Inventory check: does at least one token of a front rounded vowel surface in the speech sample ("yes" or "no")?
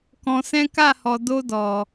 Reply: no